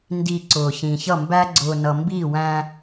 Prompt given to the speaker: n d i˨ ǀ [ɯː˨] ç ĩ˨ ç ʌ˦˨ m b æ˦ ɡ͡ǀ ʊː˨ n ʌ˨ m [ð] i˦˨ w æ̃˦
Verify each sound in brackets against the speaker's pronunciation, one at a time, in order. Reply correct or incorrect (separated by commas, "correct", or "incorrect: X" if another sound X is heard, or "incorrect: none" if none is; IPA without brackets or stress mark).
incorrect: ʊː˨, incorrect: b